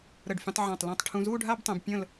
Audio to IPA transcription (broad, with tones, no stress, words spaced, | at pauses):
ɾə˧˩ɖfʲə̃˧tˤʕã˧˩tˤ lũ˧˩tˤ ʈʰũ˧ zu˥˧ɖʱa˥˧btˤɛ̃˧b pʲə̃˥˧l